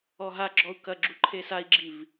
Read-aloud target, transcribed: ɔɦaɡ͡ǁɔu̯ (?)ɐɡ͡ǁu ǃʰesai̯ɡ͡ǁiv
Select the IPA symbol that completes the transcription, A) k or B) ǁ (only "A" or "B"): A